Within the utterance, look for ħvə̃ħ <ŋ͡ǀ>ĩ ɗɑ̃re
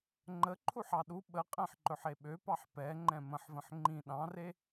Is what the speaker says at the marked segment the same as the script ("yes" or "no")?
no